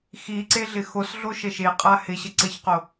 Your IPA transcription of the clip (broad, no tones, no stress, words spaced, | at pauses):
xiǀe ɮɪxosɮo ʃəʃeqʼa hɪɕə ǀəçqo